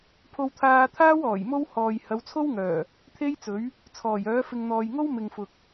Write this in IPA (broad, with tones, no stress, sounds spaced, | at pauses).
pʰ o˧ w t̪ʰ aː˧ t̪ʰ aː˥ w ɔː˨˩ j m o˥ w h ɔː˨ j h ɐ˨˧ w t͡sʰ o˥ w ŋ œː˨˩ | t̪ʰ e˥ j t͡s ɵ˨˥ ɥ | t͡sʰ ɔː˨˩ j œː˨˥ f ɪ˨ ŋ n̪ ɔː˨ j ŋ o˥ w m ɪ˨ ŋ f ʊ˨ k̚